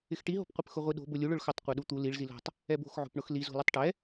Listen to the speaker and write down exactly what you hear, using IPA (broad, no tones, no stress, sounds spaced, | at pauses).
ɪ x ʈ i ɦ o̤ p qʷ ɛ p x ʊ ʁʷ i ɗ o̤ b ʊ lʲ u ɭ ʊ ɭ x ʊ tˤ qʷ ɛ ɗ u t̪ u l i ɭ z i l o̤ tˤ | ɛ b o̤ x ʕ o̤ p ɳ ʊ x l i z o̤ l i tˤ ʈ ɛ